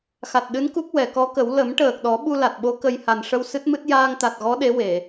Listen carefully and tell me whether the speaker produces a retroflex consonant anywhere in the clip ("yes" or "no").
yes